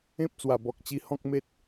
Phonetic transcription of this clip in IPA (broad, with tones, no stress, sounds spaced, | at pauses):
ẽ˦ p̚ t͡s w a˨˩ b ɔ˨ k̚ t͡ɕ i˧ h ɔ̃˦ k̚ m e˦ t̚